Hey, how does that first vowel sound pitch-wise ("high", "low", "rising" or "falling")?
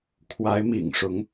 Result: rising